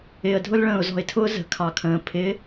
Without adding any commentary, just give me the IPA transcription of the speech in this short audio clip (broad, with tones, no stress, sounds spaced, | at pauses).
ɪː˨ ə̯ dʱ ʊ˦ l ɭ ə̃ː˨ ʊ̯ z ɔ̤˨ ɪ̯ tʰ ʊː˦ z ə̤˨ kʰ ɑ˨ kʰ ə̃ː˨ pʰ ɪ˨˦